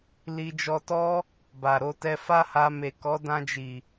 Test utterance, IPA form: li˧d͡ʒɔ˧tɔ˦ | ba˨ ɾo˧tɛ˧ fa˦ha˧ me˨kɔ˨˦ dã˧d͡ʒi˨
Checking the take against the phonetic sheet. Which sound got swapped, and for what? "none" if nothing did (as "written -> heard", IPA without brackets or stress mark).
none